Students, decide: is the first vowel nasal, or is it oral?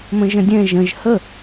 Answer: nasal